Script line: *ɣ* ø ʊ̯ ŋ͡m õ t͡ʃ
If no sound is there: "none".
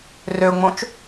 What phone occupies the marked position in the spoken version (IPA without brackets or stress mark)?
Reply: r